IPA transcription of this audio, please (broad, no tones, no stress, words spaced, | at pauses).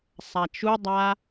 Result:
sˤat͡ʃudˤa